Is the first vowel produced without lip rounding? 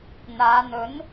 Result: yes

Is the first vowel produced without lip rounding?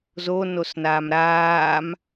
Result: no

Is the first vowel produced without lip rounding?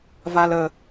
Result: yes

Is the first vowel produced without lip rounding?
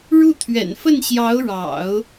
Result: no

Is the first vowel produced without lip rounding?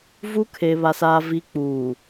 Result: no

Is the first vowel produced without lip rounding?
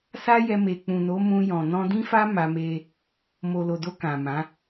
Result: yes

